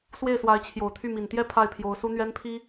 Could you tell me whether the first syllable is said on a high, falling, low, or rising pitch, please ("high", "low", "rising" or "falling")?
falling